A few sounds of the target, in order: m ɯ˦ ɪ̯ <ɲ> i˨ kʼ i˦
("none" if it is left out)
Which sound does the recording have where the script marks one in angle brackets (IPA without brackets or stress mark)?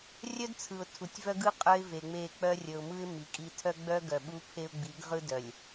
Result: m